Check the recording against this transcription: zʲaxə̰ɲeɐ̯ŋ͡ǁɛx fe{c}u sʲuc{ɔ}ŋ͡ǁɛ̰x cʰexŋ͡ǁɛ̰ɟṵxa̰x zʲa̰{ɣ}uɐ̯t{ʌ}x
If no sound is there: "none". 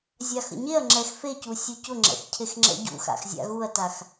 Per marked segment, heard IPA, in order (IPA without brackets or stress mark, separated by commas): c, ʊ, ɣ, a